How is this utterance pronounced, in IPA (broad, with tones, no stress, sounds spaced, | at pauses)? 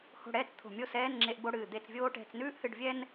h o̤˥˩ ɽ ɛː˥ t͡s t̪ʰ o̤˧˩ mʲ o˥˩ s ɛː˧˥˧ n ŋ͡ǁ e˧˥˧ ʔ b o˧˥˧ ɽ ɨː˧˩ d̪ e˥˩ t͡s vʲ oː˥ ʈ ɛ̤˧˥˧ t͡s n ʉː˥ ʔ h ɨ˥˩ ɖ vʲ ɛ˥ n